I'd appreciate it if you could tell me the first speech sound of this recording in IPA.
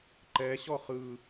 ǃ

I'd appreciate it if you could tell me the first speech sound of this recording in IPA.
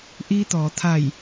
ʔ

